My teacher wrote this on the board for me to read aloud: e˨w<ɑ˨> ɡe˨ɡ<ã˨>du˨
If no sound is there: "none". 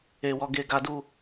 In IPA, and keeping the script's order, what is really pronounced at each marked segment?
ɔ˨, a˨

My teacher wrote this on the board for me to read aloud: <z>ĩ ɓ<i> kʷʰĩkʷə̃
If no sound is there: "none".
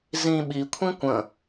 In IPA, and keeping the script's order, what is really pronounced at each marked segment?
z, i

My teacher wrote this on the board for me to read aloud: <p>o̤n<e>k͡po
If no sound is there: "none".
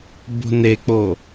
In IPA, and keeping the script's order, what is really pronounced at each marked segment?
b, e

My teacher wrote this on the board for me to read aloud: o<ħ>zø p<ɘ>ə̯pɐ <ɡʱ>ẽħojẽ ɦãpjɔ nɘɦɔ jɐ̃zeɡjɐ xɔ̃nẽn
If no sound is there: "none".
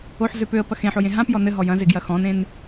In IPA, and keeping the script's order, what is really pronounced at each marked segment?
ħ, ø, x

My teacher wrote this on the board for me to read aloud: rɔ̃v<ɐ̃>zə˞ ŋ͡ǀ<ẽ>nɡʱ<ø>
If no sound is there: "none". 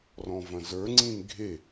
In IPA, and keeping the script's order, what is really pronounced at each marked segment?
ɐ̃, ĩ, e

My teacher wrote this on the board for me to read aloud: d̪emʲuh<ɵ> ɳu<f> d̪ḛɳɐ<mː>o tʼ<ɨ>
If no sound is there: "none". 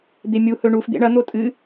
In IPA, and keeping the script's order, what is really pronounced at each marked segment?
ɵ, f, n̪, ɨ

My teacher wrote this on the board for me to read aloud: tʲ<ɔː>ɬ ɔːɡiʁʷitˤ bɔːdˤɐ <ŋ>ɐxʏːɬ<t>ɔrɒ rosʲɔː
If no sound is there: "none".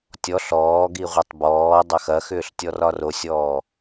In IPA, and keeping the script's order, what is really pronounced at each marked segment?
ɔ, x, tʲ

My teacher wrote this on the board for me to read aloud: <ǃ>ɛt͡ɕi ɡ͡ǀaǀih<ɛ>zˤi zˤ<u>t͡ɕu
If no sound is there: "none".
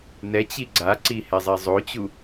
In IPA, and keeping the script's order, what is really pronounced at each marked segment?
n, ɛ, o

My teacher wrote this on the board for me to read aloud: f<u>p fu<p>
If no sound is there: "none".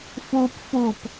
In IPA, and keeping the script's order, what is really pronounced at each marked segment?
u, p

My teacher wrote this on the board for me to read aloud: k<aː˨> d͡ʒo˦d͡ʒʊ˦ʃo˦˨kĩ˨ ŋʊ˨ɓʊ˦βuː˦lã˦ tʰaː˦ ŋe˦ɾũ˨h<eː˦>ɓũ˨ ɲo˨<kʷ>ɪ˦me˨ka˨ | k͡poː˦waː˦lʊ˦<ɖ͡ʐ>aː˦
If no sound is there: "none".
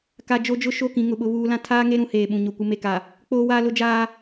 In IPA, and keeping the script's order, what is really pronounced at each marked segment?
a˨, eː˨, kʷ, d͡ʒ

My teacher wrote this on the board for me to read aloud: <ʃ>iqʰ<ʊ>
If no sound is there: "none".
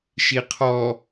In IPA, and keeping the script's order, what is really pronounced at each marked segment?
ʃ, ɔ

